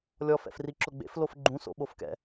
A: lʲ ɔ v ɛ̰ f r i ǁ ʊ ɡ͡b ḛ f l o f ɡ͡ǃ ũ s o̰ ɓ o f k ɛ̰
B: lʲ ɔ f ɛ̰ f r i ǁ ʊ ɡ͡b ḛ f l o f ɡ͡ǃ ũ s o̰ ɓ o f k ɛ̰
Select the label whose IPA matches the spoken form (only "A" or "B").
B